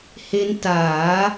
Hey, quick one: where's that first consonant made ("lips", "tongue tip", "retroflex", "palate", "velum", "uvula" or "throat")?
throat